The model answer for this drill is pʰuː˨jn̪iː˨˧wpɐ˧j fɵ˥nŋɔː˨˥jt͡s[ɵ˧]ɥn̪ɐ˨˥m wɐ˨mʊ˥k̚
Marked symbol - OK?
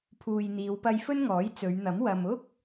no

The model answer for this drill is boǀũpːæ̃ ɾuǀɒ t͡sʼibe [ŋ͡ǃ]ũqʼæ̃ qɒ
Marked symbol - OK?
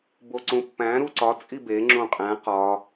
no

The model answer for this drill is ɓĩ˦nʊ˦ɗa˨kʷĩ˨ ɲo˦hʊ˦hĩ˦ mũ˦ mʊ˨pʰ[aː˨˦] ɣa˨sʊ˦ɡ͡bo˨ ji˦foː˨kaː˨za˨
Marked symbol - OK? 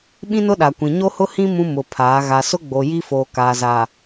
yes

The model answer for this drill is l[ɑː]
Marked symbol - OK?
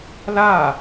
no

